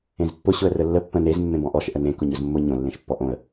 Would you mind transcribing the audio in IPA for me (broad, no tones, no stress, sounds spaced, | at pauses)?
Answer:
ẽ z pː ʊ ɕ ʊ ə̯ r ə lː ə pː ə̃ n e z mː ẽ b ɔ̃ ʔ ɔ ʃ ʔ ə n ẽ k ʊ ɲ ʊ z mː ʊ ɲ õ lː ẽ ʃ pː ɔ ʔ õ ə̯